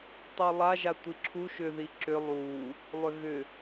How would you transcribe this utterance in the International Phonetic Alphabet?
tˤulˠa ʒatʷiǁʰu ʃʏ ðiǁʏ lˠu | lˠʏɣʏ

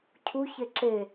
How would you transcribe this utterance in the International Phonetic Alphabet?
cʰu çeǁe

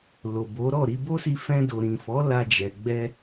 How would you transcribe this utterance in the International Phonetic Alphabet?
lo˨bo˨˦ɾɔ˦˨ ɾi˧bo˦si˧ fɛ̃˧do˨ɾĩ˨fɔ˨˦ la˧d͡ʒɛ˨ ɡ͡bɛ˧

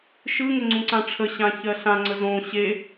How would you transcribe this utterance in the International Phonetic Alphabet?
ʃɯŋɪ ŋ͡ǀũǀãʈ͡ʂʰəɕã çɜɬãŋ͡ǀə zõ ɕe

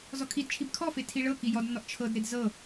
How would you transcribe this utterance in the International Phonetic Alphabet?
zɔkʰidt͡ʃʰib kʰɔfe tʰiɭɤki jɔdnːɔʔ t͡ʃʰɤdɾed zɤ

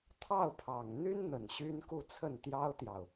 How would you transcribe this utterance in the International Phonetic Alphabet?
t̪ʰɑ˥˩ʊ̯pʰɑ˨˩ŋ n̪y˥nn̪ə˨˩n ɕy˥nku˥˧t͡sʰə˥˩n t̪jɑ˥ʊ̯t̪jɑ˨ʊ̯

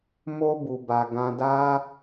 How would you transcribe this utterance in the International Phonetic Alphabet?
mo˧bu˨ba˨ ɡã˧da˦

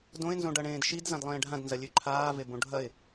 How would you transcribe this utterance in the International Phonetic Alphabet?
dõɪ̯nzõɖɐɳẽːd ʃid zãdlˠẽːɖʱãdnzɐ lʲʉǃʰaːve bõɖʱɐɪ̯

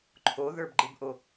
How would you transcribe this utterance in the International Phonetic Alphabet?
ǃʰoðə˞bɡ͡ǃɨbʔo

